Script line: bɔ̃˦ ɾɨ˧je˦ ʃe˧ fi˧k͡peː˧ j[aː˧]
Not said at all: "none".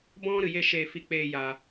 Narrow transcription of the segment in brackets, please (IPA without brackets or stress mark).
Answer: aː˧